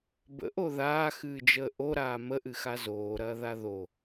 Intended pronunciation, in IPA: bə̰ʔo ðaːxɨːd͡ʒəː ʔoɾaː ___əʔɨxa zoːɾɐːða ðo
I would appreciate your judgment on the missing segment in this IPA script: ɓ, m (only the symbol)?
m